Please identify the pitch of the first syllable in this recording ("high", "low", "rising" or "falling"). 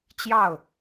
falling